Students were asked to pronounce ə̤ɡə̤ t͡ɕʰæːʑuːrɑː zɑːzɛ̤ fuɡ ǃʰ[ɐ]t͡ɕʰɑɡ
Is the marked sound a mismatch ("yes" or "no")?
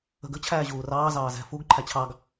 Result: yes